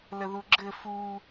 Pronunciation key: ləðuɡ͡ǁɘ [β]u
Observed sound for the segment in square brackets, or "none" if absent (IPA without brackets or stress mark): f